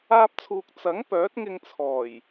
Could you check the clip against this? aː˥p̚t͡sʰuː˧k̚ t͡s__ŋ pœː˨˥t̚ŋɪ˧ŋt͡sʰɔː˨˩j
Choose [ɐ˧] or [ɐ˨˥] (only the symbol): ɐ˨˥